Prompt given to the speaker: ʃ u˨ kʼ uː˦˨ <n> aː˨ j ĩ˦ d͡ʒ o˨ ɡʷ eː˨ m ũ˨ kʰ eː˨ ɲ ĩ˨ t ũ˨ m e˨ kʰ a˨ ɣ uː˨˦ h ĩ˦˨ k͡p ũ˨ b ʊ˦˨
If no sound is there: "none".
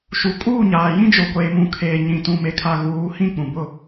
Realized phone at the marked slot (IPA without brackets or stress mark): ɲ